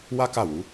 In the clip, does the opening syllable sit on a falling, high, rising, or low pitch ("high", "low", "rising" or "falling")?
high